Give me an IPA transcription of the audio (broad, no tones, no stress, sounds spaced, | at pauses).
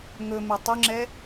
ŋ ɵ m e tˤ ʏ ŋ͡ǁ ɛ